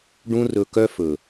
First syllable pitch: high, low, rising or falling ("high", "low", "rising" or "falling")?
high